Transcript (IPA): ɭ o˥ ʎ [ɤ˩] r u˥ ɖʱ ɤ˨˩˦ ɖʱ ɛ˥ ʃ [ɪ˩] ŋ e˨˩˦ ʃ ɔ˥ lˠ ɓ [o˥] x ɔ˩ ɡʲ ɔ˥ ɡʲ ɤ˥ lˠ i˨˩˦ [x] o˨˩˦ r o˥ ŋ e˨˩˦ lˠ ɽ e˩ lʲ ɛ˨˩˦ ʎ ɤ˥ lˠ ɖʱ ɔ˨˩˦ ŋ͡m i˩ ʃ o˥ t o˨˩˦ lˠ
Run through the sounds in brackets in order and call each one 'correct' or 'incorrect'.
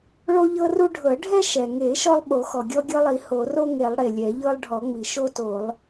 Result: incorrect, incorrect, incorrect, incorrect

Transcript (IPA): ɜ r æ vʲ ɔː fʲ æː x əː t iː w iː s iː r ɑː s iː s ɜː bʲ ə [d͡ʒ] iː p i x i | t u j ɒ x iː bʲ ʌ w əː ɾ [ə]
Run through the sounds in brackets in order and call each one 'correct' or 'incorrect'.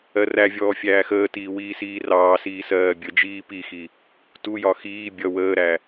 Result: correct, incorrect

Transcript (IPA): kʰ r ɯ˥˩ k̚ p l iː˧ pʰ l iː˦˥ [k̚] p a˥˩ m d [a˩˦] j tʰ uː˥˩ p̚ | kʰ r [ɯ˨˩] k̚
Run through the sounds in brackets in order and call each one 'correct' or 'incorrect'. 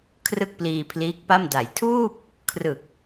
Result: correct, correct, correct

